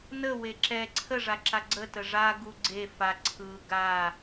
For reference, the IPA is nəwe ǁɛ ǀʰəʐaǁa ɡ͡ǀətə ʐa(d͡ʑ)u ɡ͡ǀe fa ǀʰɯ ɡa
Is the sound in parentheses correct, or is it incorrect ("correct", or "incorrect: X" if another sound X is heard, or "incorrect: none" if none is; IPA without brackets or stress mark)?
incorrect: ɡ